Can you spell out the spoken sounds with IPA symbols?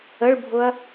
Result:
ə ɭ bʱ ʊ ɐ̯

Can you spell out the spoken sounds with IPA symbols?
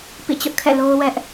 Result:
p ḭ˦˨ t͡ɕ ʊ˦ ʔ kʰ ɛ̰˦˨ l o˦ ʊ̯ w ɛ˦ ʔ

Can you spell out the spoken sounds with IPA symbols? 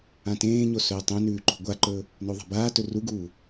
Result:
ã t ẽː ɲ o s ɵː tˤ ẽ n ʉː ǃ o̤ ɡʷ a ǃ ɵː | n o ðˤ a̤ b aː t ɵ r u ɡ uː

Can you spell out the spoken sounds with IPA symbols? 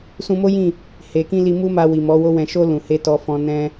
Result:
s ũ˧ m o˦ j ĩ˦˨ | h e˨ k ĩ˧ l i˧ m u˦ m a˧ w i˨ m ɔ˨˦ w o˦ w ɛ̃˧ ʃ o˦ l ũ˧ h e˦ t ɔ˧ f ɔ̃˧ n ɛ̃˧

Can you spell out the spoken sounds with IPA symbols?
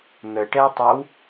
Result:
n̪ ə ʈ ɛ tˤ ɛ w

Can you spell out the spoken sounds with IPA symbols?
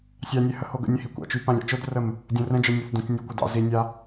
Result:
sʲ ɑ nʲ ɛ h ə h o ɡ ə̰ nʲ ɛ̃ h i kʷ ɑ̰ t͡ʃ y p ã lʲ ɑ̰ t͡ʃ o d r ə m | dʲ õ r ɛ̃ d͡ʒ ə˞ nʲ o θ d õ t͡ʃ nʲ o kʷ ə d ɑ̰ z i nʲ a

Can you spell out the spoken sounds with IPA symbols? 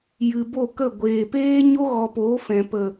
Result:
j ɨ˨ b o˦˨ k ə˦˨ ɡʷ eː˨ p eː˦ ɲ o˦ ɣ ɔ˧ p oː˨˦ f ɛ̃˨ p ə˨

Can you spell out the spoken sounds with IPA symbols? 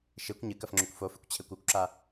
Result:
ʃ e kʷ ɲ ɨ k ɐ f ŋ͡ǁ ɵ kʷ f o f ɨ kʷ t͡ɕʰ e kʷ u kʷ ǁ a

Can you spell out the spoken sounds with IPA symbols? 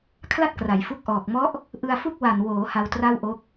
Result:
kʰ l a˥˩ t̚ k r a˩˦ j f u˦˥ k̚ ʔ ɔː˨˩ k̚ m ɔ˦˥ ʔ | ʔ ɯ˧ a̯ f u˥˩ k̚ w a˨˩ n w oː˩˦ h a˧ w t r a˥˩ w ʔ o˦˥ k̚

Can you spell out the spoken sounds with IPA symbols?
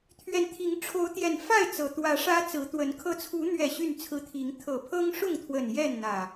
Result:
t̪ʰ ɥ ɛ˨˦ n t̪ʰ i˨˦ ŋ ʈ͡ʂʰ o˨˦ ʊ̯ t̪ j ɛ˨˩ n f a˥˨ ɪ̯ t͡s ɤ˨˩ t̪ w ä˨˦ ʂ ä˦ t͡s ɹ̩˨˦ t̪ w ə˨˦ n kʰ ɤ˨˦ t͡sʰ u˨˦ n̪ ɥ ɛ˨˩ ɕ y˥˨ n t͡sʰ ɹ̩˦ t̪ʰ i˨˦ ŋ t̪ʰ ɤ˨˩ pʰ ɤ˦ ŋ ʂ ʊ˥˨ ŋ t̪ʰ w ə˨˩ n j ɛ˥˨ n n̪ ä˨˩

